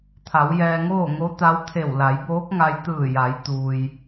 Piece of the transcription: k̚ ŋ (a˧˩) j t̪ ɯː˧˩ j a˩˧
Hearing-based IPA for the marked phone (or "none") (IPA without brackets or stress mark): a˧